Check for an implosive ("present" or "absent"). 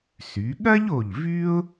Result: present